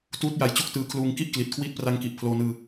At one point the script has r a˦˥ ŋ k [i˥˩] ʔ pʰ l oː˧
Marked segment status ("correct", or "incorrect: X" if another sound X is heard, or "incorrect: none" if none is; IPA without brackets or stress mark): incorrect: i˨˩